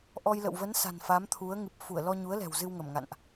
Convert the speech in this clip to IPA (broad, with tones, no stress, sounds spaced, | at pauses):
ʔ ɔ˧ j l ə̰˧˨ w v ə˨˦ n s a̤˨˩ n f a˨˦ m t̪ʰ u˨˦ ə̯ ŋ ɨ˨˩ p̚ f u˧˩ ə̯ l ɔ˧ ɲ u˨˦ ə̯ l ɛ̤˨˩ w z ɨ˧ w ŋ ə˧˩ m ŋ a̰˧˨ n ʔ